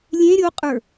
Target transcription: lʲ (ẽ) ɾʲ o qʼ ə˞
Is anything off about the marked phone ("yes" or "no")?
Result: no